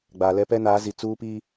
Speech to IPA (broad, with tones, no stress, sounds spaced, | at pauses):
ɡ͡b aː˨ l ɛ˦ p ɛ˦ n aː˨˦ z i˨ t͡s uː˦ p iː˦